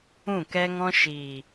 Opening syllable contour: falling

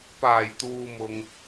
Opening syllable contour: low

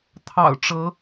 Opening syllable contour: low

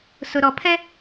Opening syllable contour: low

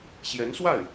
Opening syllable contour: rising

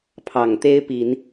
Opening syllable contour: low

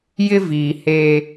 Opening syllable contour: high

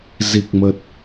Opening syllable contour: low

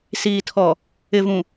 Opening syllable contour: low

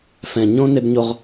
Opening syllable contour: low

